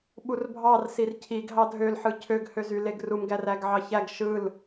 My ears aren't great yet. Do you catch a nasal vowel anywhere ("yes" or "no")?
no